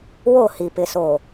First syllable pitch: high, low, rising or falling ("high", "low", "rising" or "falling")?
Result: falling